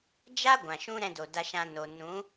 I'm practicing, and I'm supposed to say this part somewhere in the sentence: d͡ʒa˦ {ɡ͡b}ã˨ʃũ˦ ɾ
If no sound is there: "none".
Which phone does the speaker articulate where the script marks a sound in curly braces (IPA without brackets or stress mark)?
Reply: ɡʷ